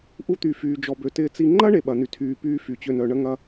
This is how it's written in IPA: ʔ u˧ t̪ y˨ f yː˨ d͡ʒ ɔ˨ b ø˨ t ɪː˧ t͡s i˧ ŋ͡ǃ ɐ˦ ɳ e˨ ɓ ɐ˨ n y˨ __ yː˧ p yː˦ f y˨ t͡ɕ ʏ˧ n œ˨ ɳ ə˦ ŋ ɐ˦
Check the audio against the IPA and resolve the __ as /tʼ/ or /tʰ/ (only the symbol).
tʰ